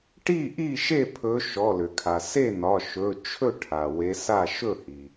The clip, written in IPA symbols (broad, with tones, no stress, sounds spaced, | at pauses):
ʈ i˥˩ ʔ i˥˩ ʃ e˥˩ pʰ ɵ˨˦ ʃ ɔ˩˧˩ l ʏ˩ kʰ a˩ s e˥˩ n ɒ˩˧˩ ʃ ɵ˩˧˩ t͡ʃʰ ɵ˥˩ ʈʰ a˩ w e˨˦ s a˥˩ ʃ ɵ˥˩ h i˩